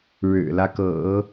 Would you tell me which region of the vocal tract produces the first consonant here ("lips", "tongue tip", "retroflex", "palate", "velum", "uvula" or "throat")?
retroflex